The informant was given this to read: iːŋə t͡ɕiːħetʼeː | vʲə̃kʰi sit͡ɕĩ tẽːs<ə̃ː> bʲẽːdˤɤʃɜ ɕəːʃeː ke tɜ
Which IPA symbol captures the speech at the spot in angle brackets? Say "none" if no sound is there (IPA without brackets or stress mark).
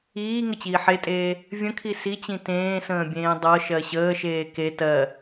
ə̃ː